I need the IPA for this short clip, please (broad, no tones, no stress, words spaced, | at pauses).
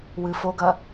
wɨfoɡɐ